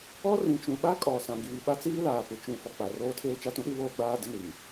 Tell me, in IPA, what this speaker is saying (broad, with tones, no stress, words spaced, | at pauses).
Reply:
ɔ˦rĩ˨t͡ʃũ˨ɓa˦ kʼɔ˨ sã˨ɡiː˨ɓa˦ t͡siː˦laː˨pɪ˨ t͡ʃũ˨ fɔ˨k͡pa˨roː˦tʰeː˦ t͡ʃa˦tũ˦ɗi˦ βoː˦ɡ͡baː˦ dɪ˦ni˨m